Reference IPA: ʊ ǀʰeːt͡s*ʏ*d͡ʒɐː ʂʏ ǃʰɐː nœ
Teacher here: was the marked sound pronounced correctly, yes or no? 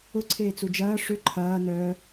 no